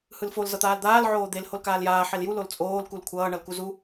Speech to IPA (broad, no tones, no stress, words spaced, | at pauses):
hɯlfol zʌt̪aːld̪aːl ʕoːd̪el holkaːljaː ħelju lolt͡sʼoːl kulkʷʰʌː ɳʌlkuzu